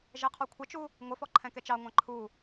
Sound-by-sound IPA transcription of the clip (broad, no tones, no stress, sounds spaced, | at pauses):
ʒ ɛ qʰ ɔ kʷʰ ə t͡ʃ u | ŋʷ ə f ɔ ǃʰ ɛ̃ k ɛ t͡ʃ ɑ ŋʷ ɑ̃ ǃʰ u